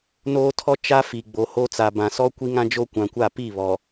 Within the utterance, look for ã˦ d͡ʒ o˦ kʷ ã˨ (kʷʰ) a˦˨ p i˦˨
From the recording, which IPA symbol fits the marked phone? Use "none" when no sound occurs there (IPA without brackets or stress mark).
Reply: kʷ